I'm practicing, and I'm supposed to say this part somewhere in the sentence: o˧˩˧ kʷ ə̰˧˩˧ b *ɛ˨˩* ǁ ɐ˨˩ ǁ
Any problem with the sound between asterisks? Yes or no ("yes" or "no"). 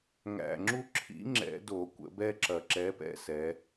yes